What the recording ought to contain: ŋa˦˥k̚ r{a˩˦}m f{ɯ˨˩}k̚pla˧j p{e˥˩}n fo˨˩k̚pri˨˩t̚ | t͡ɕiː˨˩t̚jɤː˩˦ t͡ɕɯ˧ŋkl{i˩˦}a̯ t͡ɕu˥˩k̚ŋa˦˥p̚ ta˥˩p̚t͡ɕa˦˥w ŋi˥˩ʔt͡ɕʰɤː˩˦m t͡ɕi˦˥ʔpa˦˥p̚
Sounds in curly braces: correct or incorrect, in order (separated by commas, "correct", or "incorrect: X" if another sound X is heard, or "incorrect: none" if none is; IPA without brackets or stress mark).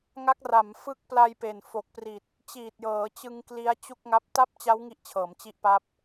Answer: correct, incorrect: ɯ˦˥, incorrect: e˨˩, incorrect: i˦˥